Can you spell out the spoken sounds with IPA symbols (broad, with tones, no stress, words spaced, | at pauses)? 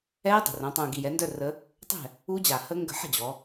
ɛː˦˥dˤə̤˨˩rõ˩˧ tˤũː˨˩ɡi˨˩jɛ˩˧ndœ˥˨ rə˦˥ | tˤɛ̤˥˨ | u˦˥d͡ʑa˨˩ hə˦˥ ŋɡə̤˥˨ ħə̤˥˨d͡ʑɔ˩˧